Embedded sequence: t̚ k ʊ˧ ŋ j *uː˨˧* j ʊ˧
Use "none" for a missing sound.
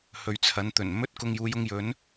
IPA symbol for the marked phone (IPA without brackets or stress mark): uː˨˧